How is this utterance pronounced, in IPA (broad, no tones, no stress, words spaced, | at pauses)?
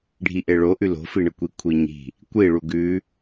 ɖʱiʔeɭoʔʉ lo̤fiɳəkʷi kʷʰiɲi̤ | kʷi ɭuɡʉ